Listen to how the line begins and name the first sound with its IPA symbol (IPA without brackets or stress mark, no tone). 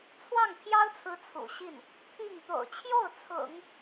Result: t͡sʰ